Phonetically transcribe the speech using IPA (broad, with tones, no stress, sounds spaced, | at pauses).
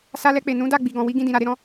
s a˧ l ɛ˧ k͡p e˨ n ũ˨˦ d a˦˨ ɡ͡b i˨ ɡ ɔ̃˨ w i˨˦ ɡ ĩ˧ d ĩ˨ ɾ a˨ ɾ e˨˦ ɾ ɔ̃˧